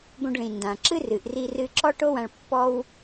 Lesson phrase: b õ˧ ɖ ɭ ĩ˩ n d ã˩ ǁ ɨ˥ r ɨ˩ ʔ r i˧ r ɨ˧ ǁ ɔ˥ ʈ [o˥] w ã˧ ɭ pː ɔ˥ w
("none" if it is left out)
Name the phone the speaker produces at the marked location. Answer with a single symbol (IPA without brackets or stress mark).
o˥